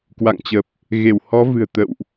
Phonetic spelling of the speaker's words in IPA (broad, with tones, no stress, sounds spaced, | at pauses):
k w a̰˧˨ ŋ t͡ɕ ə˨˩ p̚ | ɣ e˧˩ w h ɔ˨˦ v ɨ̤˨˩ ə̯ t̪ ə̰˧˨ w ʔ